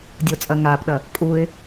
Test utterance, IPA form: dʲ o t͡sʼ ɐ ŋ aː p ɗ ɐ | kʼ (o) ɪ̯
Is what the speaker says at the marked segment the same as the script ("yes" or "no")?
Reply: no